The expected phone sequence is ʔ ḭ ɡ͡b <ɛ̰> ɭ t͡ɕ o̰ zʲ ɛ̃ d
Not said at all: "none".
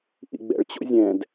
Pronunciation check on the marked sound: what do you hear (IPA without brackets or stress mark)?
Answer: ɛ̰